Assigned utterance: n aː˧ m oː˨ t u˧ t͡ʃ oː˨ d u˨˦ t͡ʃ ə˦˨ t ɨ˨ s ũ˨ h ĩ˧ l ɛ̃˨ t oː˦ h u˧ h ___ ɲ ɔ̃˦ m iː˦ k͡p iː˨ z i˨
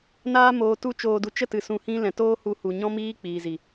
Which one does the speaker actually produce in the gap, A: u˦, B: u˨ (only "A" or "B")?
B